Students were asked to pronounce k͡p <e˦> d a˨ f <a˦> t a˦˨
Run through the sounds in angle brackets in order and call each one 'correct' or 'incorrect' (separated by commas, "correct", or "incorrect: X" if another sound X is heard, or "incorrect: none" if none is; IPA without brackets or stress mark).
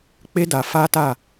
correct, correct